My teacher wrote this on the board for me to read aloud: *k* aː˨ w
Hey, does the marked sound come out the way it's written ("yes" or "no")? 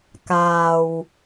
yes